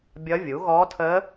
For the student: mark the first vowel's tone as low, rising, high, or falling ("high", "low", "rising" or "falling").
rising